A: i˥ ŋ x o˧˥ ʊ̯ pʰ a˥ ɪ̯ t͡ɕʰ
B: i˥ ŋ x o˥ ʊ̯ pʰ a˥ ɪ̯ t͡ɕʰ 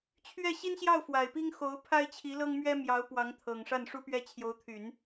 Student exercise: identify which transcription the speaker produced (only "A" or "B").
A